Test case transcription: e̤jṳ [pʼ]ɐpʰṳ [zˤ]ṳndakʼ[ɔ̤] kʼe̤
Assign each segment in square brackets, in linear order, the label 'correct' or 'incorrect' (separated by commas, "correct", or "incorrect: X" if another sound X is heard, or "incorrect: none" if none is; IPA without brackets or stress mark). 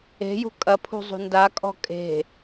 incorrect: kʼ, correct, correct